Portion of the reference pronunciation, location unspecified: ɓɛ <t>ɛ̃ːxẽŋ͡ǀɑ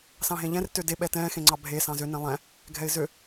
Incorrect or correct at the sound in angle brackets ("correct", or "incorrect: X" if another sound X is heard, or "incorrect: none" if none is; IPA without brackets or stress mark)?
correct